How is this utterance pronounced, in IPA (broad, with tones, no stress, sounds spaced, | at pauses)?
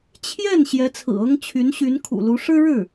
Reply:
t͡ɕʰ j ɛ˥˩ n ɕ j ɛ˧˥ t͡sʰ ɹ̩˨˩ ɤ˥ ŋ t͡ɕʰ y˧˥ n ɕ y˧˥ n kʰ ṵ˨˩ l u˧˥ ʂ ɻ̩˥ ɻ ɻ̩˥˩